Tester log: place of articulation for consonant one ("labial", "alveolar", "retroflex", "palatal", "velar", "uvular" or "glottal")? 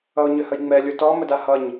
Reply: palatal